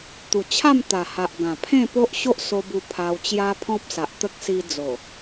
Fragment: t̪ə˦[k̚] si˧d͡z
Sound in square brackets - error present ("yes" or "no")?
no